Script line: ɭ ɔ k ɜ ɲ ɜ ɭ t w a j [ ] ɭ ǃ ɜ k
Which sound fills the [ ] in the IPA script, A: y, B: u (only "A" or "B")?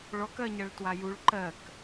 B